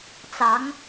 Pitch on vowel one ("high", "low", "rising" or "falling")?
rising